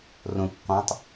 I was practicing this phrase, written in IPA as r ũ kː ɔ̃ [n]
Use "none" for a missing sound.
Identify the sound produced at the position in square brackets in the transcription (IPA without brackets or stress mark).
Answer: tˤ